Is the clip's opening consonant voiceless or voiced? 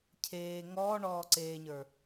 voiceless